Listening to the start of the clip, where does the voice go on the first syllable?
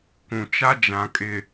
low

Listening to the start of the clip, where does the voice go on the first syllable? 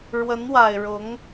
rising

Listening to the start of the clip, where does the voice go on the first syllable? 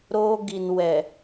high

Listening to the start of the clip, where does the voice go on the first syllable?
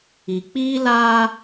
low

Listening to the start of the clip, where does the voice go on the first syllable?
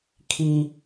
low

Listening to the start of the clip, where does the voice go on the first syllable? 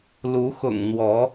rising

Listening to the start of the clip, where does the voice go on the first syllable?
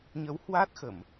rising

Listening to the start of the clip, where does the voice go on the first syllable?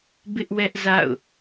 high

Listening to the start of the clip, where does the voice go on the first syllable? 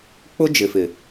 high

